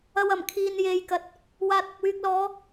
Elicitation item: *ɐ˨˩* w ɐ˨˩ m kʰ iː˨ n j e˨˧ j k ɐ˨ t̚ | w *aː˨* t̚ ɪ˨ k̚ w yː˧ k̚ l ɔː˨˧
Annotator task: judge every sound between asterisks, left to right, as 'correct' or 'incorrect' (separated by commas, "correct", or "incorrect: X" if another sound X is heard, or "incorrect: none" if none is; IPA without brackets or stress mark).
incorrect: ɐ˨, correct